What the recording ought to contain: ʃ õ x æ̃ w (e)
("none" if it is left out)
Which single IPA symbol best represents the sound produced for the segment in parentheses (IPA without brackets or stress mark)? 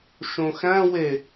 e